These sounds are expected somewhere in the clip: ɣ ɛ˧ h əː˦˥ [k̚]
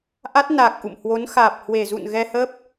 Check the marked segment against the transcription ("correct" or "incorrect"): incorrect